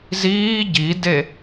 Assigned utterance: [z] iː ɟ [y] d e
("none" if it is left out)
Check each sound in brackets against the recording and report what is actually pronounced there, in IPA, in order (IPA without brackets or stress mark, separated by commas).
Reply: z, i